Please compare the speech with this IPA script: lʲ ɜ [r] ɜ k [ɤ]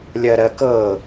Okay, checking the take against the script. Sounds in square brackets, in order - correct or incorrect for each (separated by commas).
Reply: incorrect, correct